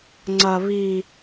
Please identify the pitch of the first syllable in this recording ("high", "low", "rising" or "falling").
low